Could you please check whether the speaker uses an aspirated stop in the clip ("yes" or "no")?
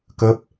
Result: no